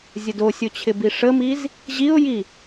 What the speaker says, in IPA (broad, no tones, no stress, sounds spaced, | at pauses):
zʲ ə d o sʲ o t͡ɕʰ ɪ b i ʂ ə m i z | ʑ i ʊ̯ j i